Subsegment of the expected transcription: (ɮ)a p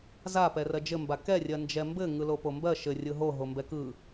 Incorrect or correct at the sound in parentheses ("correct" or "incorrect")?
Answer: incorrect